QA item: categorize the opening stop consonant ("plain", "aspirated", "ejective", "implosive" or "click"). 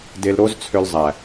plain